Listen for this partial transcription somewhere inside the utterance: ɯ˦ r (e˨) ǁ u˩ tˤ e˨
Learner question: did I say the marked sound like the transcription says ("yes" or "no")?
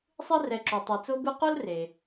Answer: no